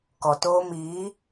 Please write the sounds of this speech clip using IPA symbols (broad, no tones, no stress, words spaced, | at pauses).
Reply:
kɔtoː miː